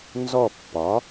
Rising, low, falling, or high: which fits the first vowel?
falling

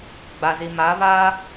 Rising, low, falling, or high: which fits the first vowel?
low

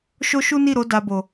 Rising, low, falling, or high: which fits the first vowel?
high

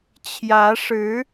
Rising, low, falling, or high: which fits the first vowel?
rising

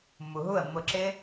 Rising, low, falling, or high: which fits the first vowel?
low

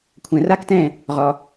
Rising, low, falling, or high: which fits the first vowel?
low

